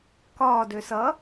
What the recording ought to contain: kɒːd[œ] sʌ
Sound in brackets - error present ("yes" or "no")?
yes